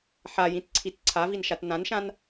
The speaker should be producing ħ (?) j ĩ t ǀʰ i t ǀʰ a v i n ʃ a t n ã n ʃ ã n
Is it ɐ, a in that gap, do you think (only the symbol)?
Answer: a